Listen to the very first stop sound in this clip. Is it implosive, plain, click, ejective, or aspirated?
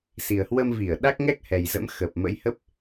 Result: implosive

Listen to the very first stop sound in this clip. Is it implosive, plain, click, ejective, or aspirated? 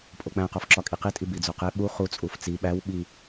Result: ejective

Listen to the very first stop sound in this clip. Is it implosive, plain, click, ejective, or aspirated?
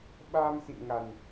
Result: implosive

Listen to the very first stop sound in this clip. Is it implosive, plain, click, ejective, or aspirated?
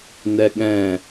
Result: implosive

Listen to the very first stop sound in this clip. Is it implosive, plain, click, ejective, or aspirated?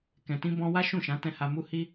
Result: plain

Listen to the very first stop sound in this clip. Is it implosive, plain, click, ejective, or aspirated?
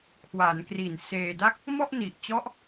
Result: aspirated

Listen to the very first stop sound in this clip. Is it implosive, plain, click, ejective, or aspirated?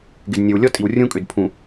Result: plain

